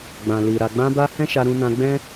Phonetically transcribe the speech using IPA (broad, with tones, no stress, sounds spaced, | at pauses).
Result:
ɡ͡b ã˨ l i˨ ɾ a˨ ɡ͡b ã˧ b a˧ h ɛ̃˦ ʃ a˧ ɾ ũ˧ n ã˧ ɡ͡b ɛ̃˦